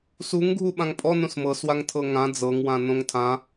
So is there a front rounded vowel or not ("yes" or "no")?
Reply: no